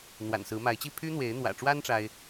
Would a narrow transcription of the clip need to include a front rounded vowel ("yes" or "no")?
yes